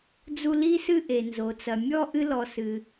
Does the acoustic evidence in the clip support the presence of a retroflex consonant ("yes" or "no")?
no